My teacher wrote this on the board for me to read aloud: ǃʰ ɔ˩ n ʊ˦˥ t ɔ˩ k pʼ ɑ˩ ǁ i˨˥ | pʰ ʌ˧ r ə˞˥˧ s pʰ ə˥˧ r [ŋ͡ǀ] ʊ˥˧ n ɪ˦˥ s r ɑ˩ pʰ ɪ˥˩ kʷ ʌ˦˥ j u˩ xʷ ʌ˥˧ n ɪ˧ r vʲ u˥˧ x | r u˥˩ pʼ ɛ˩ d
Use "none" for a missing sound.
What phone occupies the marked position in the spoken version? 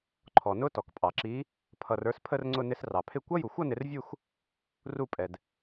ŋ͡ǀ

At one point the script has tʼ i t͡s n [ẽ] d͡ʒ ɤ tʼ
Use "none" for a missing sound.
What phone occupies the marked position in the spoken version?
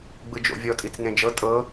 ẽ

